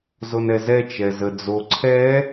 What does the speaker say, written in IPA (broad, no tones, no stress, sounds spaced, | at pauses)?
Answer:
z o n ɛ z ɛ t͡ʃ ɛ z ə d͡z o ǀʰ ɛ